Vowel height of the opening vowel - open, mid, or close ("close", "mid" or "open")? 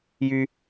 close